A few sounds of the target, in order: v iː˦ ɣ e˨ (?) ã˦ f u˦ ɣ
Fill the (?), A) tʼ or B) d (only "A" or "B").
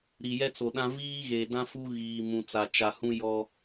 B